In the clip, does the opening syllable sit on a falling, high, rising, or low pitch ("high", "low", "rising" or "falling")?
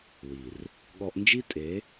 low